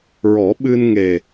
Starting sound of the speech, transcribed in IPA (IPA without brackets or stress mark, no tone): ɹ